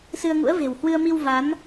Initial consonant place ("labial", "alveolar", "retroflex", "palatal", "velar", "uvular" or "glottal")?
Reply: alveolar